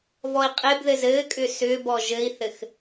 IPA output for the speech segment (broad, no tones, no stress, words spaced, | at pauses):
vɔi̯qʼebðɘz ɘːkʼʏ sʏːbɔ ʒɘi̯θɘx